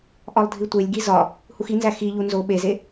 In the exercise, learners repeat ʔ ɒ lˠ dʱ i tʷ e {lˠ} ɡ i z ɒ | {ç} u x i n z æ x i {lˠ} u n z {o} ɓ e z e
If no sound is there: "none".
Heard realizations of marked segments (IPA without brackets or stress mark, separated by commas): lʲ, h, ʎ, o